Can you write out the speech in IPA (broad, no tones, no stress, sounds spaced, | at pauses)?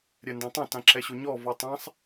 ɾʲ ɛ n d ã tˤ ã t ã ǁ ɛ ɕ o ɲ ɔ v ɔ tˤ ã sˤ